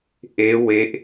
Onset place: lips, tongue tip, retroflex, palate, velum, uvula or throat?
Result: throat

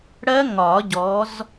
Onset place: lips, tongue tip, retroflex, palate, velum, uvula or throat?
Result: retroflex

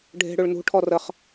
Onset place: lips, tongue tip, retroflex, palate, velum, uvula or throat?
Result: retroflex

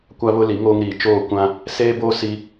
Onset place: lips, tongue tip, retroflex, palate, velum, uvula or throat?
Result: velum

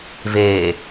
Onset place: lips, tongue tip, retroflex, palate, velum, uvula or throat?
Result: lips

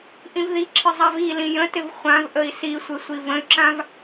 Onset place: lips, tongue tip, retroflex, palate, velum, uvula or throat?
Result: throat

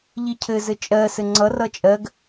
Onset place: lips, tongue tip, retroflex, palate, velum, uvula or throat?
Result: palate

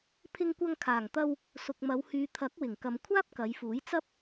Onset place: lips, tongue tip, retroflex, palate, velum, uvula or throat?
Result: lips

